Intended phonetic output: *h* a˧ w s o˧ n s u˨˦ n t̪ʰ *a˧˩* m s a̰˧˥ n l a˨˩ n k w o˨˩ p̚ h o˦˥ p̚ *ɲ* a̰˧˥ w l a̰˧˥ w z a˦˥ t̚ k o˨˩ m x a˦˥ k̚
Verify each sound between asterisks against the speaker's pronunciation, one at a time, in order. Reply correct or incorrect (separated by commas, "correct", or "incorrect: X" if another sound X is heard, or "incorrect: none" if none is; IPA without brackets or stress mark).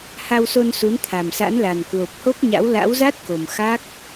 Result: correct, incorrect: a˨˩, correct